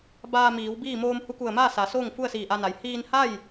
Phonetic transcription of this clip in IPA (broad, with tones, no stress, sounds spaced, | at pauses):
b aː˧ m iː˩˧ w b iː˥˨ m oː˧ m h u˧ k u˧˩ ə̯ m aː˥˨ s a˩˧ s oː˥˨ ŋ f u˥˨ ə̯ s iː˧˩ ʔ a˧ n a˩ j h iː˧ n h a˥˨ j